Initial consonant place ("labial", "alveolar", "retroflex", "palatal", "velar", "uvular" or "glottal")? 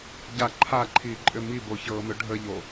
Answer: palatal